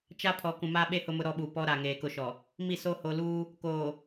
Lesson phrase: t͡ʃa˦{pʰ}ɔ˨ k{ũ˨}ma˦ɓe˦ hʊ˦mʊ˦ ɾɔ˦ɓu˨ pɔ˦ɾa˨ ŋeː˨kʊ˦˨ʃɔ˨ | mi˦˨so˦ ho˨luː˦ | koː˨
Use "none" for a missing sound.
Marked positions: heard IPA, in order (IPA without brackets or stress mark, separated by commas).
pʰ, ũ˨